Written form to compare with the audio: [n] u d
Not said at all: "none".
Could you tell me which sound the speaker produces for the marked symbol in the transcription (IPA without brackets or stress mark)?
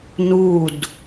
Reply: n